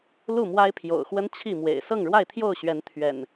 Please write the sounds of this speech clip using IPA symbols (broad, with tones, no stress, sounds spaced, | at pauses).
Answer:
l u˥˨ m w a˦ ɪ̯ pʰ j o̰˨˩ ʊ̯ x w ə˦ n t͡ɕʰ i˥˨ m w ḛ˨˩ ɪ̯ s ɤ˥˨ ŋ ɻ w a˥˨ ɪ̯ t̪ʰ j o˥˨ ʊ̯ ɕ ɥ ɛ˨˦ n t̪ʰ ɥ ɛ̰˨˩ n